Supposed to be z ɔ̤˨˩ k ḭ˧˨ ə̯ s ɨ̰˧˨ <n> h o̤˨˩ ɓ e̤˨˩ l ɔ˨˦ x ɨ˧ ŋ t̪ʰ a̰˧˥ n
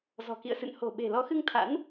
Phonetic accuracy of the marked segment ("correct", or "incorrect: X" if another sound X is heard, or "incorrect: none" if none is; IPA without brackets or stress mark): correct